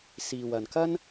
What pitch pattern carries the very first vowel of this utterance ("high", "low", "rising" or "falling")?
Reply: low